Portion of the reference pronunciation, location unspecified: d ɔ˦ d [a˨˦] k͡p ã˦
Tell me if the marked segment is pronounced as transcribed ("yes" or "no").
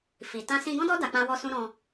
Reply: no